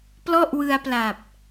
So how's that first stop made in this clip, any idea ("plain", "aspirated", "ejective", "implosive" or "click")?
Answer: plain